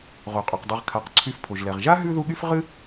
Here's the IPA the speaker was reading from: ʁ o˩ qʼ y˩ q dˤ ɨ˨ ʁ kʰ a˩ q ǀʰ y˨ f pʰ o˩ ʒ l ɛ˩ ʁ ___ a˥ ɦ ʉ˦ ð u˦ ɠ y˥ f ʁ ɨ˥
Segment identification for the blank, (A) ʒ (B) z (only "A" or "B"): A